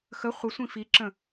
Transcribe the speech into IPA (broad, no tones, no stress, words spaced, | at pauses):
xə χʷəsʷĩ fiǁə̃